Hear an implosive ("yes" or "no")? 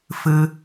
no